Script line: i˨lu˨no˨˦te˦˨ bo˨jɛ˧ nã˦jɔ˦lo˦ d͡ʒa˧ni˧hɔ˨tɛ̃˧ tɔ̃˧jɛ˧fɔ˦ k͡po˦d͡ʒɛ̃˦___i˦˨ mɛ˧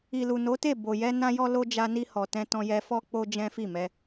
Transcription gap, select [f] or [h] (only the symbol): f